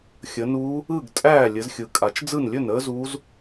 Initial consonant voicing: voiceless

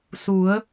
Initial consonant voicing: voiceless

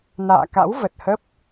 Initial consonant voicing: voiced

